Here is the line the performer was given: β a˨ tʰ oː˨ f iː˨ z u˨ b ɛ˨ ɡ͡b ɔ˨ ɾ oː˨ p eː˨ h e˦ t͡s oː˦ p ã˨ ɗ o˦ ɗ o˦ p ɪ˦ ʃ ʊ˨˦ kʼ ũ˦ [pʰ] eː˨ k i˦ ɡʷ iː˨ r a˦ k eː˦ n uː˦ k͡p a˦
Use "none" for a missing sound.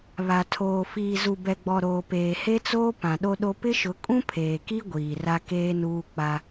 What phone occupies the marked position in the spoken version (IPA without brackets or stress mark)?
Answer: pʰ